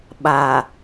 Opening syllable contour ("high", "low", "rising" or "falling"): low